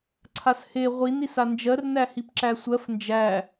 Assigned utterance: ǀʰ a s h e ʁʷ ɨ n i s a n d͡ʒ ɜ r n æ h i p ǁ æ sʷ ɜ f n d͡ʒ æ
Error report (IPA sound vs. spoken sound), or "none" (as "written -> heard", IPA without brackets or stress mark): ɨ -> i